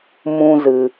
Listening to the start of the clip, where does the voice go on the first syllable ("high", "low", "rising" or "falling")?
high